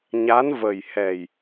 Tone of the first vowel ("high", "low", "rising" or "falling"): rising